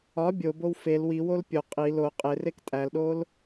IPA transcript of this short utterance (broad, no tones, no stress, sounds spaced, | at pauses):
ɒ bʲ o b o w f e l w i w o l pʲ o qʼ i l o qʼ e r e k tʼ æ l ɗ o l